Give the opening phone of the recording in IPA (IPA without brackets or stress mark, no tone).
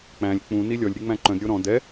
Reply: k͡p